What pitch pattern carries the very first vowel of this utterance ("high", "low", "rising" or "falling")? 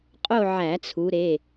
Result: falling